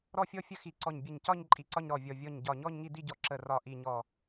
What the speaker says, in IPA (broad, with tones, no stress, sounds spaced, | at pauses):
ɾ ɔ˥˧ fʲ ɔ˥˧ fʲ ə˥˧ x i˧˩ ǀ ɔ˧˩ ɲ bʲ ə˧˩ ɲ c ɒ˥˧ ɲ ǃʼ i˧˩ ǀ ɒ˥˧ ɲ ɾ ɔ˧˩ vʲ ɔ˧˩ vʲ ɔ˧˩ ɲ ɟ ɒ˧˩ ɲ ɔ˥˧ ɲ ŋ i˥˧ d i˥˧ ɟ ɔ˧˩ ǁ ə˧˩ r ɒ˧˩ ʔ i˧˩ ɲ ɔ˧˩